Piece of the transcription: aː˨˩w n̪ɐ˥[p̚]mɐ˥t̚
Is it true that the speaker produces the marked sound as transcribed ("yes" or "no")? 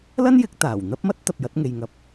yes